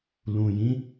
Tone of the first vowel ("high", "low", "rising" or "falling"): low